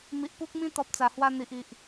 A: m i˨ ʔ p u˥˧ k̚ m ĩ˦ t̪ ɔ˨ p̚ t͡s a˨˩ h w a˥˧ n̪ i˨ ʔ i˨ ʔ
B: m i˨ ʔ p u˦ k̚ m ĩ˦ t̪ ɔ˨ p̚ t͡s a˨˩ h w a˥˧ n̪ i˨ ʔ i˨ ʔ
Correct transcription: B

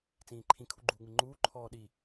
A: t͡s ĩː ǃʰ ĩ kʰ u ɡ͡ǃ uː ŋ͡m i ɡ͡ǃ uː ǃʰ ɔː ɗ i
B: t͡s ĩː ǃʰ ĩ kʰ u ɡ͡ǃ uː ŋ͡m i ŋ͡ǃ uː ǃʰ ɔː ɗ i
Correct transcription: B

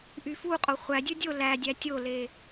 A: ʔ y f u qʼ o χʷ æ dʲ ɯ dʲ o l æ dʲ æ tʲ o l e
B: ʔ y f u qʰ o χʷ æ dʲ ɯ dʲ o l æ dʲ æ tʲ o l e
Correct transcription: A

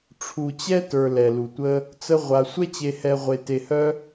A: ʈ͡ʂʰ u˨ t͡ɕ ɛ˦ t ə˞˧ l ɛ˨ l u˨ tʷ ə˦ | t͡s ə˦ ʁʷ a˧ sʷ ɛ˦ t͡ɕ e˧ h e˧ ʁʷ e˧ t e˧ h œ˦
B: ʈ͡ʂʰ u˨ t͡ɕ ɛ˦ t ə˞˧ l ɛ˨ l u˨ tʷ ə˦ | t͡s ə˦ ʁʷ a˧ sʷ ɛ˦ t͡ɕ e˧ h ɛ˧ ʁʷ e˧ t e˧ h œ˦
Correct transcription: B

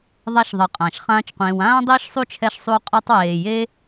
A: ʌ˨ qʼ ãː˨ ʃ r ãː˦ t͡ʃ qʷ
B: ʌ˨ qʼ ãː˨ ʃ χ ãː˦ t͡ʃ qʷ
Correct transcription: B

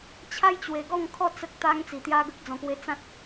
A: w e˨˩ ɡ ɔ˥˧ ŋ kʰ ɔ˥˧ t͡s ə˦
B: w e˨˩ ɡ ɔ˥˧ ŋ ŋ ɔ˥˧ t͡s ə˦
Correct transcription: A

